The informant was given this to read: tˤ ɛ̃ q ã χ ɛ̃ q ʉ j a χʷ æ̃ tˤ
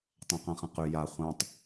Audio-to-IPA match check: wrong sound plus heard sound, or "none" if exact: æ̃ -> ã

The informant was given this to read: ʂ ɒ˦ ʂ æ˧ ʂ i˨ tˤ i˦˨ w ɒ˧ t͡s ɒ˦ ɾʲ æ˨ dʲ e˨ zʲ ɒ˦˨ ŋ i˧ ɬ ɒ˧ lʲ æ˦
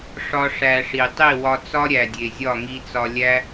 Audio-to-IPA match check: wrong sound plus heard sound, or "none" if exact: ɬ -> t͡s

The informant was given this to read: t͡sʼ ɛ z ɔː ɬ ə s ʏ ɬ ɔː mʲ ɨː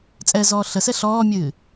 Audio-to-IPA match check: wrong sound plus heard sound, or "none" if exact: ʏ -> ɛ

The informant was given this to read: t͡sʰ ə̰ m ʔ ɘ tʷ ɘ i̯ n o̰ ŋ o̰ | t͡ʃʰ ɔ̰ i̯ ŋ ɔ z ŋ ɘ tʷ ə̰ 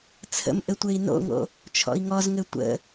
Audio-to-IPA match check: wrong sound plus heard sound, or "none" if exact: none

